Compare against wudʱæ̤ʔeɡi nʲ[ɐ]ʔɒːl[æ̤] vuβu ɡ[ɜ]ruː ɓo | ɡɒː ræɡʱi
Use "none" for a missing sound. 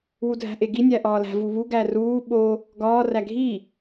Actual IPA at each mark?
æ, æ̤, æ

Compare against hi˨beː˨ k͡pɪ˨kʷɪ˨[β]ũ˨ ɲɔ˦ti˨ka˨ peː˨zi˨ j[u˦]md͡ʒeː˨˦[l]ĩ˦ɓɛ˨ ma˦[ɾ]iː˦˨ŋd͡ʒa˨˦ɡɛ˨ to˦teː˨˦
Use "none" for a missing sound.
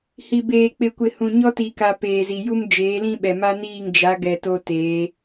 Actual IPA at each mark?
h, u˦, l, n

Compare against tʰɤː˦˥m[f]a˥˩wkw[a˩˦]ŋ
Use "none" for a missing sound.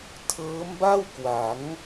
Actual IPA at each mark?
b, a˩˦

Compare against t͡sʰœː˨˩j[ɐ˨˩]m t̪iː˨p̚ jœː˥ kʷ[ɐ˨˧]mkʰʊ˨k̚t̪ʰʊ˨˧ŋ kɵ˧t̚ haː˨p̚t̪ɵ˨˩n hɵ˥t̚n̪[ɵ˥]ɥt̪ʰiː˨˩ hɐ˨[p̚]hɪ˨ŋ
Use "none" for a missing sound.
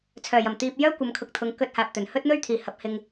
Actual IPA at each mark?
ɐ˨˩, ɐ˨˧, ɵ˥, p̚

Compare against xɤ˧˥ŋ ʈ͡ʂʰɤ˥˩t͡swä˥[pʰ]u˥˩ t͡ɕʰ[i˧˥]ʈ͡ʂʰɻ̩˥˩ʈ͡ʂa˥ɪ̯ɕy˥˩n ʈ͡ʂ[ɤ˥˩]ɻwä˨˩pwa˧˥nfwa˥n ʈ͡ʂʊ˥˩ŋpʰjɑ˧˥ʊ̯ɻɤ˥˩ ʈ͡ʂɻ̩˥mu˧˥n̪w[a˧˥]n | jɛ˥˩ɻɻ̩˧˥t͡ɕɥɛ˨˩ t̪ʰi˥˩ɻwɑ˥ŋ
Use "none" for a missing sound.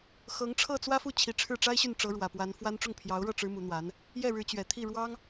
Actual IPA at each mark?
f, i˧˥, ɤ˧˥, a˧˥

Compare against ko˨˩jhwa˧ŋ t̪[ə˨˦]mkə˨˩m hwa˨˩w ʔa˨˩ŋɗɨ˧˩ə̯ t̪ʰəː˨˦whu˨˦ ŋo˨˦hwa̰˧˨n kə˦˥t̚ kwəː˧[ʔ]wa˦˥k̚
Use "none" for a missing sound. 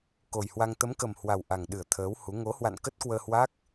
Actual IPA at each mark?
ə˨˦, h

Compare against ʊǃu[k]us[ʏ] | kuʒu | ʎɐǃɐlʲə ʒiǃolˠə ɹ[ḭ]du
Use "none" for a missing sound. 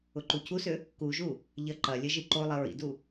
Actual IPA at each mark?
cʰ, ʏ, ḭ

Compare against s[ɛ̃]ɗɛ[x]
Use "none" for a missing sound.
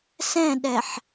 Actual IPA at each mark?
ɛ̃, ħ

